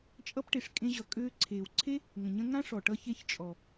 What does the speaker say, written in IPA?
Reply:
t͡ʃʼ ʌ˦ p ʈ e˨ ʂ kʼ ẽ˧ ʑ ʌ˨ kʼ øː˧ ǀʰ eː˨ w ǀʰ e˦ | ŋ ə̃˨ ɲ ə̃˦ ŋ ã˦ ʂ ɔ˨ ʈ ʌ˦ ç e˦ ç t͡ʃʼ ɔ˨

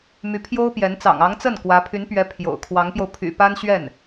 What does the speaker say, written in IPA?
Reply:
m y˧˥ pʰ j o˥ ʊ̯ p j ɛ˧˥ n t͡s ɑ̰˨˩ ŋ ɑ˧˥ ŋ t͡s ə˥˩ n k w ä˧˥ pʰ y˧˥ n p ɥ ɛ˧˥ pʰ j o̰˨˩ ʊ̯ kʰ w ɑ˧˥ ŋ p j o˧ ʊ̯ pʰ y̰˨˩ p a˥ n ɕ ɥ ɛ˥˩ n

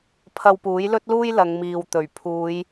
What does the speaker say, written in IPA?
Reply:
pʰ ɐ˧ w p uː˨˥ j l ɵ˥ t̚ l uː˥ j l ɐ˨˧ ŋ m iː˨ w t̪ ɵ˨˩ ɥ pʰ uː˨˧ j

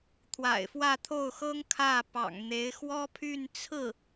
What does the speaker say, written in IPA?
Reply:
t̪ʰ w a̰˨˩ ɪ̯ f w ä˥˧ t̪ʰ o˥˩ ʊ̯ x ɤ˥ ŋ kʰ ä˥˩ p ɑ̰˨˩ ŋ n̪ e˧˥ ɪ̯ x w ɔ˥ pʰ y˥˧ n t͡sʰ ɹ̩˥˩

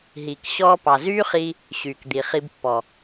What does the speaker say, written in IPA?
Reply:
ɦ iː˨ k ɕ ɔː˧ p ɑ˨ z yː˦ χ i˧ | ɕ yː˨ k d̪ i˨ χ i˧ b pː ɔ˨

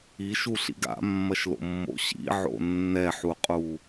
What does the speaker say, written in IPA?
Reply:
i ʃ u ɬ ḭ ɡ a̰ mː ɐ ʃ l o̰ mː o̰ ɕ ḭ ʕ o̰ nː ɛ ħ u qʼ u

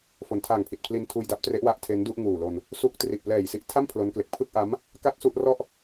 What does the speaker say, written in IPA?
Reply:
f o˩˦ n tʰ aː˨˩ ŋ pʰ i˨˩ t̚ pʰ l i˧ n tʰ uː˧ j d a˦˥ p̚ t r e˦˥ ʔ w a˦˥ ʔ tʰ e˦˥ n d u˥˩ ʔ ŋ uː˨˩ l o˧ n | s u˦˥ k̚ t r i˨˩ ʔ p l ɛː˨˩ j s i˦˥ ʔ tʰ a˥˩ m pʰ l o˦˥ n k l e˨˩ k̚ pʰ ɯ˥˩ k̚ ʔ a˦˥ m | k a˥˩ t̚ s u˥˩ ʔ r ɔ˥˩ ʔ

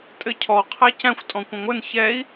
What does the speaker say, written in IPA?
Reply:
tʼ ɘ cʰ ɔ qʰ æ c æ̃ xʷ tʼ ɔ̃ kʷ ə̃ ŋʷ ɘ n ç ɛ i̯

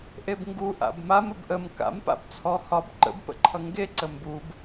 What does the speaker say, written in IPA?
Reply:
ʔ e b ŋ ɡ u ʔ a̰ b m a m ə b ʔ ə m k a̰ m p a̰ b t͡sʰ ɔ h ɒ b ǃ ə̰ b p ə̰ ǃʰ ʌ ŋ ɡ e ǀ ə m b u b

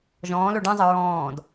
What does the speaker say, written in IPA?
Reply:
ʒ ɔ̃ː l o ɖ ɛ̃ zˤ ə ɹ ɔ̃ː d

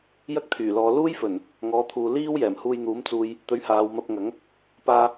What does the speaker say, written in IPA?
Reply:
j ɐ˥ k̚ t̪ʰ yː˨˩ l ɔː˨˧ l uː˥ j f ɵ˨˩ n | ŋ ɔː˨˥ t̪ʰ uː˨ l iː˥ w j ɛː˨˩ m h uː˧ j n̪ uː˨˥ m t͡s uː˧ j | t̪ ɵ˨˥ ɥ h aː˨˧ w m ɐ˧ p̚ ŋ ɐ˨˥ ŋ | p aː˧

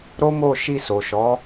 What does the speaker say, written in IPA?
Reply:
ɾ o˦ m o˦˨ ʃ i˧ s o˨ ʃ ɔ˨˦

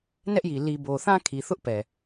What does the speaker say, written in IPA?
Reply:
n ɛ˦ ʔ j i˨ l i˨ b o˨ θ ã˦ kʰ i˨ θ ʊ˦ ʔ p ɛ˨

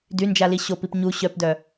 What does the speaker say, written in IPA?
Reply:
d y n d͡ʒ a l i ɕ o p i p ɲ u ɕ œ p d œ

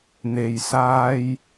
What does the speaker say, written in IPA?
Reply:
n̪ e˨ j s aː˧ j

